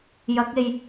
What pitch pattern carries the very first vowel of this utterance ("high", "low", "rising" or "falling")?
rising